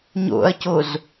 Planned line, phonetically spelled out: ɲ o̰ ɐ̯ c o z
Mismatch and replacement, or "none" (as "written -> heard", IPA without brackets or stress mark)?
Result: none